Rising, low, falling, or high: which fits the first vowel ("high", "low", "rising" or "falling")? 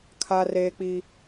high